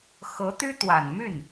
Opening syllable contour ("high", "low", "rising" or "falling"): rising